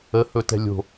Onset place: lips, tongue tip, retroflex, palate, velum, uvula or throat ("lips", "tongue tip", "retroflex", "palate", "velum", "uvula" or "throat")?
throat